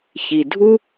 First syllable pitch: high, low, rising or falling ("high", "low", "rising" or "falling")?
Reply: low